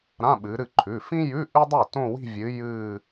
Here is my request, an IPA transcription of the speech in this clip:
ɾ ã˧˥˧ ɓ ɨ˨˦ ɾ ɨ˥˩ ǃʰ ʉ˩˧˩ f ĩ˥ j ʉ˧˥˧ ʔ ʉ˥ dˤ u˥˩ t õ˥˧ w i̤˥˧ vʲ ɨ˨˦ j ɨː˥˧

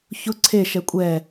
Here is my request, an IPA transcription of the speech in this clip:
ç ʊ ǀʰ e ʃ ɛ kʷʼ ɛ

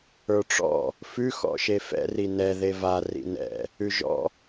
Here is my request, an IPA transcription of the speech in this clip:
ə˞ ʈ͡ʂ ɔ̰ | f ʉ x ɔ̰ ʃ e f ɛ̰ r i n ɛ ð e v a r ḭ n ɛ̰ | ʉ ʒ ɔ̰

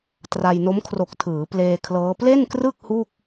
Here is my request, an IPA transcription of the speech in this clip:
t r a˧ j n o˦˥ m kʰ r o˨˩ k̚ tʰ ɯː˩˦ p l eː˧ kʰ l ɤː˦˥ p l e˥˩ n k r ɯ˥˩ k̚ h u˥˩ k̚

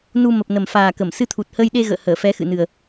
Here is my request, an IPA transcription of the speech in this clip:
n u˧ m ə˨˩ p̚ n ə˨˩ m f aː˨˩ k ə˧˩ m s ɨ˧ t̪ʰ u˨˩ t̚ h əː˧ j ɗ e˧ ɣ ə̰ː˧˨ h əː˧˩ f ɛ˨˦ x ɨ̰˧˨ n ɨ˨˩ ə̯

